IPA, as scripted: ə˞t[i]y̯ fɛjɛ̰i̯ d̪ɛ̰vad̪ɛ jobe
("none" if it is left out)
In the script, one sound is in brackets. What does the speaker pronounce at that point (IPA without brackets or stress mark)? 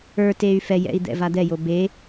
e